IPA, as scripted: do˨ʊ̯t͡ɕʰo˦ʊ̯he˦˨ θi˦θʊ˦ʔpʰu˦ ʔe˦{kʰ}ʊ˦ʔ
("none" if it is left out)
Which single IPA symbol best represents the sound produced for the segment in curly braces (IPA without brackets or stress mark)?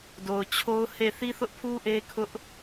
kʰ